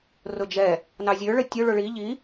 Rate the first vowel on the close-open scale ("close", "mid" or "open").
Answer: close